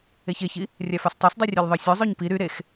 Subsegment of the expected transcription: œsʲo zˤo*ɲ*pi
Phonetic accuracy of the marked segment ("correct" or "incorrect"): correct